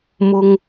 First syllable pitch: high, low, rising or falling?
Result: low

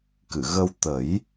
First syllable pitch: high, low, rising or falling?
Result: low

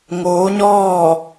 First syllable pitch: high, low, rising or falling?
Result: rising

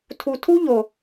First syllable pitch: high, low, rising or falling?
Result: low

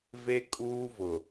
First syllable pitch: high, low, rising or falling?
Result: high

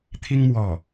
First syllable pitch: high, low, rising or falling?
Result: high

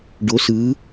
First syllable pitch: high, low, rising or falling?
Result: rising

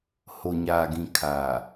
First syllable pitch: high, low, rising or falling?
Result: low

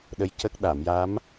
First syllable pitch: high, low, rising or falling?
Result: rising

